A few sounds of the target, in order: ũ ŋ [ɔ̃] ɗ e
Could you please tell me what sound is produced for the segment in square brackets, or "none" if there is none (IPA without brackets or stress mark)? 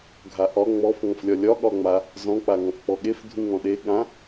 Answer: ɔ̃